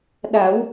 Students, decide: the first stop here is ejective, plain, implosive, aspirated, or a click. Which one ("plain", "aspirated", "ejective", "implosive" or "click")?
implosive